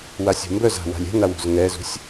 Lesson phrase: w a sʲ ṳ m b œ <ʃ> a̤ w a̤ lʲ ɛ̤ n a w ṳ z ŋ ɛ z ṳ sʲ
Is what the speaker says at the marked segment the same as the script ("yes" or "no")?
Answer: no